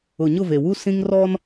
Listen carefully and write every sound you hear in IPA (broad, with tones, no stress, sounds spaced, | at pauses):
ʊ˨ ɲ ʊ˦˨ v e˨ w u˦ s ĩ˦ ŋ r ɔ˦ n